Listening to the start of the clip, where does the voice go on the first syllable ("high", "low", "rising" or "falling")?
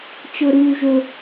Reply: high